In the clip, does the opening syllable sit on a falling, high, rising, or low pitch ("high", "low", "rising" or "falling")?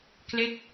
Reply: falling